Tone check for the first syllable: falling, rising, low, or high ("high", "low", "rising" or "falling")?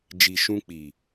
low